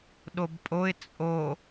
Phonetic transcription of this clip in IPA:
ɗ o b pʼ o ɪ̯ t͡sʼ o

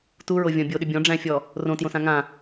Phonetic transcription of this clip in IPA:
t u ɹ o vʲ ɔ̃ bʲ o ɗ ʏ bʲ ɔ̃ ɖ͡ʐ æ̃ fʲ ɔ | r õ t j õ s ã ŋ ã

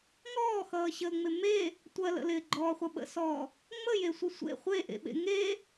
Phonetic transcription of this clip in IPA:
ŋ ɔː x ʌː ɕ əː ŋ͡m ɪ m e | tʷ ɜ l ə̰ l ɪː ɡ͡ǃ ɔː χʷ ʌ ɓ ə̰ s ɔː | ŋ͡m ə j e sʷ ɪ sʷ ḛ χʷ e ʔ ḛ ɓ ḛ ŋ e

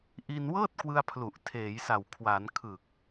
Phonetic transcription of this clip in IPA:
ʔ i˧ n w ɤː˥˩ t̚ k w ɯ˧ a̯ pʰ l u˨˩ ʔ tʰ eː˩˦ j s a˨˩ w kʰ w a˩˦ n kʰ ɯ˨˩ k̚

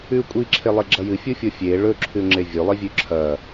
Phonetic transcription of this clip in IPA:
ʉ kʷʼ i ǁʰ e lˠ e ɡ͡ǁ ɐ j ɨ fʲ u fʲ o fʲ e ɭ ɵ ǁʰ ʉ ŋ͡ǁ e vʲ ɵ lˠ i vʲ ʉ ǁʰ ɐ

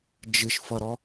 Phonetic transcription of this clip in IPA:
d͡ʒ ɨ ʃ f ʌ ɾ ɔ

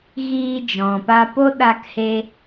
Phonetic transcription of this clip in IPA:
ɣ iː˧ d͡ʒ ɔ̃˨ p a˧ p o˦ ɗ a˧ k h e˧

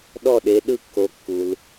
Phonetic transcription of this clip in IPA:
ɗ ɔ˥˩ ɗ e˨˦ ɗ ɯ˥˩ kː o˨˦ kː u˨ l

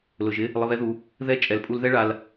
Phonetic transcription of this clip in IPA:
l ʊ˨ ʒ ɪ˦ | lˠ ɪ˧ β ɛ˦ ð u˧ | ð ɛ˦˨ t͡ʃʼ ɛ˨ l pʼ u˧ l ð ɛ˦ ɭ a˧ l

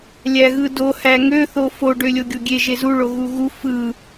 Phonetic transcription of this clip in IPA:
lʲ æ ɣ ɯ d o h æ ŋ ø θ o f o ɖ ø lʲ o ɡʲ o ɡʲ e ʒ e z u ɭ o ɣ u ɣ u f ɯ

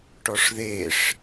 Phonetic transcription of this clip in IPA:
ʈ ɔ ʂ ð e ʂ

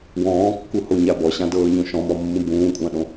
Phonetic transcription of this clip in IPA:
w ɔ̃ː kː u h o ɲ a b ɔ ɕ ã d ɤː ɲ õ ʃ ɔ̃ m ɔ mː ũ b ũː kʷʼ ã ɗ õ

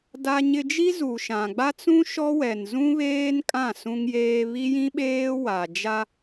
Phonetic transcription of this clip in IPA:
d a˦ ɲ ɪ˦ d͡ʒ i˦ z u˨ ʃ ã˨ ɡ͡b a˦ t͡s ũ˦ ʃ ɔ˦ w ɛ˨ n z ũ˦ β eː˦ n kʼ ã˦˨ s ũ˦ ŋ j eː˦ β i˦ j ĩ˦ ɓ eː˦ w a˨ d͡ʒ a˦

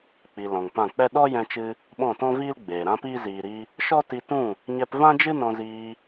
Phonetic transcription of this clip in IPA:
k͡p i˨ l ɔ̃˨ ŋ p ã˦˨ k͡p ɛ˦ ɗ ɔ˦ j ɛ̃˧ t͡ʃ ɨ˧ | ɓ ɔ̃˦˨ t ɔ̃˦ v iː˦ l ɡ͡b eː˨ ɾ ã˦ p iː˦ z iː˨ ɾ i˧ | ʃ ɔ˦ t i˧ t ũ˦˨ | ɲ ɛ˧ p v ã˦ d͡ʒ ɨ˦ n ɔ̃˧ z iː˧

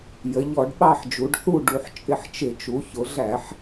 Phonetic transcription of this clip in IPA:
j ə˩˧ ʎ ɔ˧˩˧ ɖ ɓ ɑ˦˨ ħ d͡ʒ u˩˧ ɖ θ u˦˨ ɖ u˩˧ ħ t͡ʃʼ ɪ˦˨ ħ t͡ʃ ɪ˧˩˧ t͡ʃ u˩˧ ç ʊ˩˧ ɮ æ˧˩˧ ħ

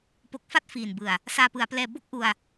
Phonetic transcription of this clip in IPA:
p o˨˩ k̚ f a˥˩ t̚ f iː˨˩ n b ɯ˨˩ a̯ | s aː˧ p ɯ˩˦ a̯ p l ɛː˧ b o˥˩ k̚ ʔ u˧ a̯

